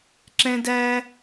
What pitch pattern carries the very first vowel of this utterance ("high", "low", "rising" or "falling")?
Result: high